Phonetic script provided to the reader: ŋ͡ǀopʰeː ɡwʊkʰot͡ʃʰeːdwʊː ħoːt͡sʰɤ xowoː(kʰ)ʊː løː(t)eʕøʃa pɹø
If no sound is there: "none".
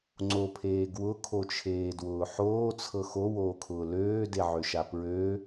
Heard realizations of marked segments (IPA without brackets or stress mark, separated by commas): kʰ, d